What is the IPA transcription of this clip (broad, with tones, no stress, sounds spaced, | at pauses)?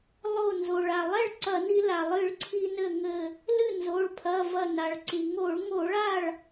lˠ o˧˩ n z o˩ ɭ a˩ lˠ ɛ˥˩ ɭ ǀ ɐ˧˩˧ n i˧ l a˩ lˠ ɨ˧˩˧ ɭ ǀʰ i˧ n ɘ˧˩ ŋ ɘ˧˩ | l ɨ˥˩ n z o˩˧˩ ɭ pʰ ɐ˩˧˩ v ɐ˧˩ n a˩ ɭ ǀ i˩ ŋ o˧˩˧ ɭ ŋ o˧˩˧ ɭ a˥˩ ɭ